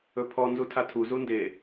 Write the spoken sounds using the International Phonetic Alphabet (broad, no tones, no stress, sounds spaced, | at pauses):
ɵ pʰ ɔ n z u tʰ a tʰ u z u n d e